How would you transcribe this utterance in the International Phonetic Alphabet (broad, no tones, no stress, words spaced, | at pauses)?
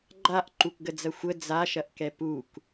ɡ͡ǃaʔǃukɡəd͡zɐ xʷə d͡zaʃɐʔkɛ puk